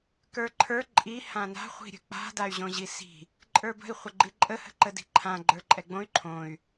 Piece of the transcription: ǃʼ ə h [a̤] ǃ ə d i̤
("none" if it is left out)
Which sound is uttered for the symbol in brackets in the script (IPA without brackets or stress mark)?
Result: ə̤